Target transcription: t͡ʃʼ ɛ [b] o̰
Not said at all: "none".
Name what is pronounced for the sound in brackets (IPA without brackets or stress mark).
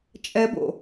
b